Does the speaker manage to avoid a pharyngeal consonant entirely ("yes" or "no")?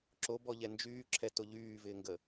yes